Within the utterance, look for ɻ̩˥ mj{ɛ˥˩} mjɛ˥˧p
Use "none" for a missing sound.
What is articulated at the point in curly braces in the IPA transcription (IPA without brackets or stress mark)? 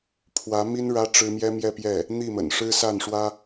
ɛ˥